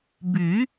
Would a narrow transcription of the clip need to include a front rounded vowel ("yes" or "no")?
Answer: yes